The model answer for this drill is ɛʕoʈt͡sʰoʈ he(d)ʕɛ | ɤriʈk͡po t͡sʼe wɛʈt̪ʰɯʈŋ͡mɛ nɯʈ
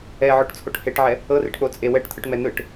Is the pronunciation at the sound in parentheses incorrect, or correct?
incorrect